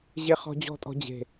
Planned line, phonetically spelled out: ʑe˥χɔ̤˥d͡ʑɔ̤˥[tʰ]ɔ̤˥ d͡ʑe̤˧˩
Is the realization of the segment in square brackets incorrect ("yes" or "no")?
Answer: yes